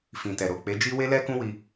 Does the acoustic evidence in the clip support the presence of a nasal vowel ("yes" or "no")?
yes